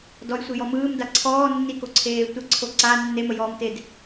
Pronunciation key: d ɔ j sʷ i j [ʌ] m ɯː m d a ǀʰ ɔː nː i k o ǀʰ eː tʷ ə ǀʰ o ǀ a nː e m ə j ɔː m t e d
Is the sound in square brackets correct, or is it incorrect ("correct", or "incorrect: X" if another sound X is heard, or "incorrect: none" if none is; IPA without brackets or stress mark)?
incorrect: ɔ